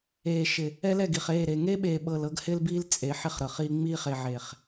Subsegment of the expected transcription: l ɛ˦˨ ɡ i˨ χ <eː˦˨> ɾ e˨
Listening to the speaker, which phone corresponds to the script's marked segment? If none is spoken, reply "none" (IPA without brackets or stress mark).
eː˦˨